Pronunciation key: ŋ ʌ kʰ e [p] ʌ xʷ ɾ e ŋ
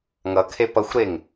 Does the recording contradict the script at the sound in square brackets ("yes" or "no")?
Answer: no